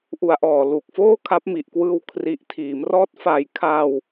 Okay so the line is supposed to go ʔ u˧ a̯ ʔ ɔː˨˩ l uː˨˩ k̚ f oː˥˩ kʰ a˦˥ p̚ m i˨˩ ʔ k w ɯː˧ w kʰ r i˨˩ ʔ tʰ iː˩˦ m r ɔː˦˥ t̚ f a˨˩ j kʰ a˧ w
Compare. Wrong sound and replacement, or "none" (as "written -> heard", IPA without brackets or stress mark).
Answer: none